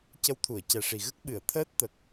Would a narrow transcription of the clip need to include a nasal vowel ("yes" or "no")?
no